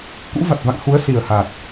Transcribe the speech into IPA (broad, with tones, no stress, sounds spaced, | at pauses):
k ṵ˧˥ v a˨˩ t̚ v a̰˧˨ ŋ x u˨˦ ə̯ s i˨˩ ə̯ h a˨˩ t̚